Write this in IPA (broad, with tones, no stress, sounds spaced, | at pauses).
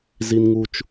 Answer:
z i˦ n ŋ u˦ t͡ʃ